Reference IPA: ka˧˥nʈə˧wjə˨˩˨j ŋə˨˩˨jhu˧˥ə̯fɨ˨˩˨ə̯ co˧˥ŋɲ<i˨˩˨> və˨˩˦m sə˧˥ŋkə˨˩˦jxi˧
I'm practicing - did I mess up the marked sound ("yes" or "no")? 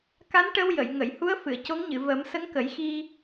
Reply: yes